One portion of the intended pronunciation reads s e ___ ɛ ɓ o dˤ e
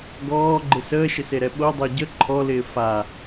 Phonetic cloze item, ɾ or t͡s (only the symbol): ɾ